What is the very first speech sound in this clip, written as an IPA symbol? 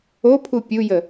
o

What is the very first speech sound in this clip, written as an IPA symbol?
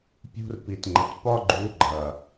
pʲ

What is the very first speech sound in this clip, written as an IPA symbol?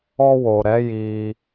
ɔ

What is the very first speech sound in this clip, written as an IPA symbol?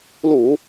l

